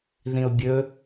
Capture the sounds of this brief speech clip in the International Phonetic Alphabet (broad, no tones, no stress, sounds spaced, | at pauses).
ð ĩ ʊ̯ bʲ ɵ